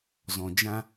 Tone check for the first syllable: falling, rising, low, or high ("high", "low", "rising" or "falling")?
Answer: low